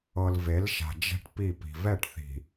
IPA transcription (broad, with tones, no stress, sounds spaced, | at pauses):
ɤ˨ l v e˨˦ l ʃ a̤˨ d͡ʒ ɛ̤˦ ʈ p i˦˨ p i̤˨ v ɛ˦˨ ʈ θ i̤˨